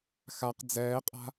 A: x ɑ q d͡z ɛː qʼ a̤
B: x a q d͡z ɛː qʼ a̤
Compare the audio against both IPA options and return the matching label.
B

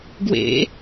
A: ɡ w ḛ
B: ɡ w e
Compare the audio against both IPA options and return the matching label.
A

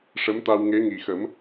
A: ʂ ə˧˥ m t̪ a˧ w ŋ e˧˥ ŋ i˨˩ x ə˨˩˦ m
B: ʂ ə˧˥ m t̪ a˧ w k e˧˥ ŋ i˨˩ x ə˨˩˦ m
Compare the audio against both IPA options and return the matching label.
A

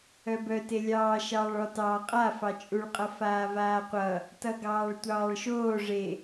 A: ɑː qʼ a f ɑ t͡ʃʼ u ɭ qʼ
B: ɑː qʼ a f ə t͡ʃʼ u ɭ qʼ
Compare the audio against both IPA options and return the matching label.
A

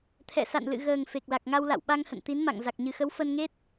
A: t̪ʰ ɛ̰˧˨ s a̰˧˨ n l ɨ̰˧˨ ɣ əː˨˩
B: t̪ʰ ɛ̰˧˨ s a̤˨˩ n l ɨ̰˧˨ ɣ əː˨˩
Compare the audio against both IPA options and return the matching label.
A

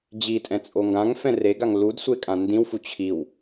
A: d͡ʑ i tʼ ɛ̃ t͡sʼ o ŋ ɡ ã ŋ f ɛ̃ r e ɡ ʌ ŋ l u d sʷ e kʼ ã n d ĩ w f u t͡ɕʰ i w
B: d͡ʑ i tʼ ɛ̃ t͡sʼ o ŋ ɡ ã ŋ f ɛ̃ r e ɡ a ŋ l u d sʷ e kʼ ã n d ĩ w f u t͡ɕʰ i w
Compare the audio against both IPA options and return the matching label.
B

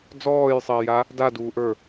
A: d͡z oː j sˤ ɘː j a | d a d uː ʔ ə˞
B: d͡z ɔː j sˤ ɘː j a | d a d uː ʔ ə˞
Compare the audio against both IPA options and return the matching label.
B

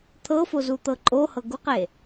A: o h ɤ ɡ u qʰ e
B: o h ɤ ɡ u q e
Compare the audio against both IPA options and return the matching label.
B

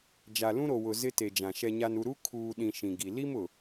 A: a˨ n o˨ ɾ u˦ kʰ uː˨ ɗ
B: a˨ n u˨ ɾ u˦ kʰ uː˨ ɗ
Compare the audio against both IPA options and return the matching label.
B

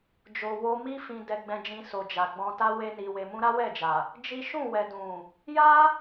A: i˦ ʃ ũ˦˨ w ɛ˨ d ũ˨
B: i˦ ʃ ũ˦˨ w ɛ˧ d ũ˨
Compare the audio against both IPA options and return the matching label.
A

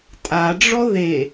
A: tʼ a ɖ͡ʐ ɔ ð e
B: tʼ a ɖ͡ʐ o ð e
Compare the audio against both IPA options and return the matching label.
A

